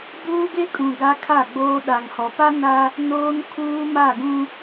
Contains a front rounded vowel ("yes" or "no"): no